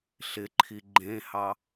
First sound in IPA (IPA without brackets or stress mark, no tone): ɬ